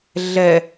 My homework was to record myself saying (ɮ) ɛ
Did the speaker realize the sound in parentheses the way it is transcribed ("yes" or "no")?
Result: yes